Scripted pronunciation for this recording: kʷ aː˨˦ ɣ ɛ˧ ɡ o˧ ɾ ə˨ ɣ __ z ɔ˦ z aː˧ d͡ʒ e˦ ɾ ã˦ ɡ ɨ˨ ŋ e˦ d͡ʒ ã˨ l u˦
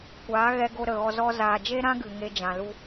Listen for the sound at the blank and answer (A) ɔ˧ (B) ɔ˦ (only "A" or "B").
A